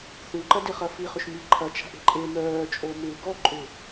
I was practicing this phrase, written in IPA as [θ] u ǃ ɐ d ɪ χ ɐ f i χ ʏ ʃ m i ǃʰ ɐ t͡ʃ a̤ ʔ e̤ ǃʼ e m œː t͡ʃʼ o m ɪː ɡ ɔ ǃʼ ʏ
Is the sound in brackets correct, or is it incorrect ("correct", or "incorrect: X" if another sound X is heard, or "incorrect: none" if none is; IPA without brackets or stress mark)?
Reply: correct